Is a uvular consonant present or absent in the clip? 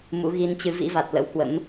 absent